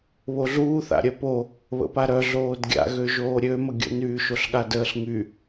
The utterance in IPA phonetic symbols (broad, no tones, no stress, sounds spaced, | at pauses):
β o ɮ uː θ a̰ ɾʲ œ p o | β ə̰ p a ɾ œ ɮ oː d ɡʲ a̰ ɣ ø ʒ oː ɾʲ ø m ə ɡʲ ə̰ n yː ʃ o ɬ ɠ a d əː ɬ ŋ y